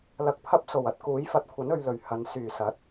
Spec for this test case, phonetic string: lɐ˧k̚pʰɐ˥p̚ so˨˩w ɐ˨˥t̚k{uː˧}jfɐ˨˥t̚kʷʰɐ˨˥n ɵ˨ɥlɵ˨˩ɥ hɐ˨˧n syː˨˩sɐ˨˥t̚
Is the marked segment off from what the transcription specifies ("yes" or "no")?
yes